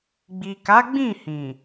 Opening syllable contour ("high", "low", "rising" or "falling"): low